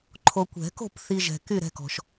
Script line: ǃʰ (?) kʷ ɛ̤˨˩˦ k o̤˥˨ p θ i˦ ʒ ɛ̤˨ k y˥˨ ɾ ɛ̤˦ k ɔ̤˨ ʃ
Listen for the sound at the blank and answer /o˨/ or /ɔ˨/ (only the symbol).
o˨